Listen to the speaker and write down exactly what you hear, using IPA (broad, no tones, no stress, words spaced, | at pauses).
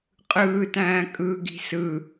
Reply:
qʼɯːtæ̃ː kʼɯ ɡi̤sɯ